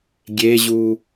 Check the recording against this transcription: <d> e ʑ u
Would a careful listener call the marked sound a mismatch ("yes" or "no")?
yes